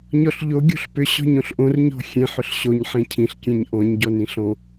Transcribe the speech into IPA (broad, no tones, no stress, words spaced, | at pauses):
ɲɔɬʎo ɡʲo̤ɬpʏ ɕɔ̤ɲõɬʔõr ɲɔ̤xʲẽħ ʏɬɕoɲ ħẽcʰĩɬ kʲẽɲʔɔ̃ɲ ɟɔnĩɬɔ̃